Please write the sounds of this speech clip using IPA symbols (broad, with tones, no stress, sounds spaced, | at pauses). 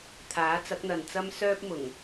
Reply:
t̪ʰ aː˨˥ t͡s ɐ˨˥ k̚ n̪ ɐ˨ n t͡s ɐ˥ m s œː˥ p̚ m ʊ˨˩ ŋ